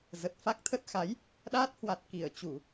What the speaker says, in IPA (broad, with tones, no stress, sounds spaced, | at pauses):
z ə˨˩ t̚ f a˦˥ k̚ t̪ʰ ə˦˥ t̚ x a˨˦ j | ɗ aː˦˥ t̚ h w a˨˩ t̚ k i˧˩ ə̯ t͡ɕ u˧˩˨